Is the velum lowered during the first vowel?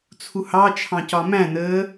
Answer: no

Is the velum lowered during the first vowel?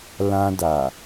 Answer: yes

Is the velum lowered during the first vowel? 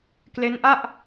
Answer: no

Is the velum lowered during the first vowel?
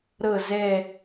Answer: no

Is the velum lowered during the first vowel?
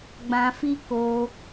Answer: yes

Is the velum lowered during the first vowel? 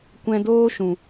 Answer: yes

